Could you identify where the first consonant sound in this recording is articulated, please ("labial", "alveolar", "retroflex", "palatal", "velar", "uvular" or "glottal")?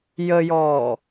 palatal